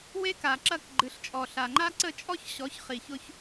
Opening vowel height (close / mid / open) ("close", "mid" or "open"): mid